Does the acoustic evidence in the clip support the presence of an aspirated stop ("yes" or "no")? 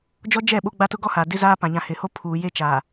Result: yes